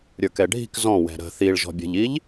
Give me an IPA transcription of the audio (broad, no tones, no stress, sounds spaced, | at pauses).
ɾʲ ə˞ k ɛ ɖʱ i̤ k z ɔ̃ w ɛ̤ ɾ ə̤ θ i ɭ ʒ ɔ̤ bʲ ɛ̤ ʎ i ʎ